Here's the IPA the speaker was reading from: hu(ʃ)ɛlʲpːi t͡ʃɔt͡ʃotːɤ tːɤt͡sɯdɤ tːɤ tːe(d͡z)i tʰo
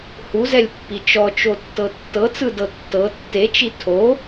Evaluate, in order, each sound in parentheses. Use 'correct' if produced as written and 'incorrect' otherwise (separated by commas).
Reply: incorrect, incorrect